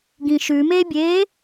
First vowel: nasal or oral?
nasal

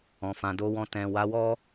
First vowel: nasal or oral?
nasal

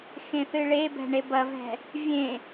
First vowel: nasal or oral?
nasal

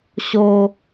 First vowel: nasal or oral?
oral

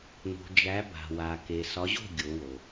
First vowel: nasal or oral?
oral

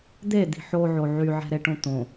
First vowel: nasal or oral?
oral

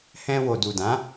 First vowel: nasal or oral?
nasal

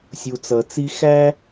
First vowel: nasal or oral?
oral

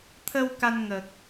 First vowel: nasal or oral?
oral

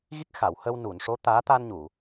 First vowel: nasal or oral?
oral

